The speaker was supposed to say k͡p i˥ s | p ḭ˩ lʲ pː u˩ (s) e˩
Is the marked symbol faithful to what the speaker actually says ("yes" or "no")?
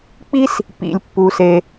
yes